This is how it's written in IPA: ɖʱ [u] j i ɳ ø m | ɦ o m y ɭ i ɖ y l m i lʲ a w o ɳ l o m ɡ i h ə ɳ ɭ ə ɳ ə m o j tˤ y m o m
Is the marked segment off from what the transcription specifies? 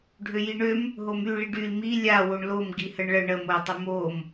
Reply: yes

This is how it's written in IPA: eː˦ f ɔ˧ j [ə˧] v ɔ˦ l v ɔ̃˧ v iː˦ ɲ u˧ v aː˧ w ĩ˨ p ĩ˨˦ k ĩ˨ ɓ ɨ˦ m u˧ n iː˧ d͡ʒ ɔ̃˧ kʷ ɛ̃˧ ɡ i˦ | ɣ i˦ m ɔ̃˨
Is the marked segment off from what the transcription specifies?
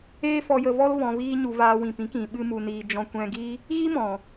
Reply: no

